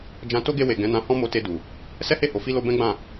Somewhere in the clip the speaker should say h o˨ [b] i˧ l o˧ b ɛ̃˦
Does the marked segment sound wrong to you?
yes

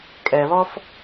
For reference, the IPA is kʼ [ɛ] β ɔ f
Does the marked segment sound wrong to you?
no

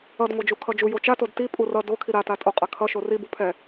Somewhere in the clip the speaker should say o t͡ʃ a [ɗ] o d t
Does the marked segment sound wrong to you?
yes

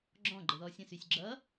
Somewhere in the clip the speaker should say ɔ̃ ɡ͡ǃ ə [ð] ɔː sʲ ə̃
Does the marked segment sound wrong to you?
no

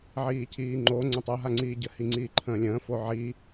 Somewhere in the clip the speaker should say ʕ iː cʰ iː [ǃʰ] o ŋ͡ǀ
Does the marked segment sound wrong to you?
yes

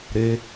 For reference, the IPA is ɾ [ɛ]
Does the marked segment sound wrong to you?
yes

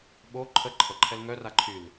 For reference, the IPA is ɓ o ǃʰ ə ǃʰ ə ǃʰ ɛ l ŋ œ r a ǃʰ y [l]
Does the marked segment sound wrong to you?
no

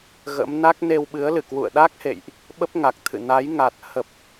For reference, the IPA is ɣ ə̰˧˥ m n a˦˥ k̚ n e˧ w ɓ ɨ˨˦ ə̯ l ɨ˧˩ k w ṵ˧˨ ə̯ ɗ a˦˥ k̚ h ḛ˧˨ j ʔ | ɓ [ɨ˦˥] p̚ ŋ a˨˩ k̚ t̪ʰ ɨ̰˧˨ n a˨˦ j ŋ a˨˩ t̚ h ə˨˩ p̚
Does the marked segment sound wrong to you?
yes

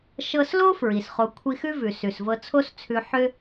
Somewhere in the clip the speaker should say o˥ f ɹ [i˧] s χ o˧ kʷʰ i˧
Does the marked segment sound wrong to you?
yes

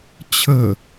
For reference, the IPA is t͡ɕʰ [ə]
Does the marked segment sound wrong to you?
no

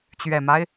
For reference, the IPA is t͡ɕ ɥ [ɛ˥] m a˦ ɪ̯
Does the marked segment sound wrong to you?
yes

